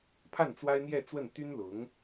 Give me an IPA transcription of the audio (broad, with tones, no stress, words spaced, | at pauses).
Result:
pʰa˥˩nt͡swa˥ɪ̯n̪jɛ˥˧ t͡swə˥˩n t̪y˥nlʊ˧˥ŋ